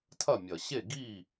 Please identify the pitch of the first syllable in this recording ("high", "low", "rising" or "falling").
falling